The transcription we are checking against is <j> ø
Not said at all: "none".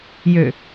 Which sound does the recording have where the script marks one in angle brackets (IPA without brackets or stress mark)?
j